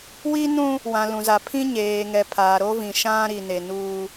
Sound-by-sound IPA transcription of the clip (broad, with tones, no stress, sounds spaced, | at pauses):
w i˦ n ũ˦ | w ã˨ l ũ˨ z a˨ pʰ ĩ˦ ɲ eː˨ ŋ ɛ˨ pʰ aː˨ ɾ o˦ v ĩ˨ ʃ ã˦ ɾ i˨ n e˨ n uː˦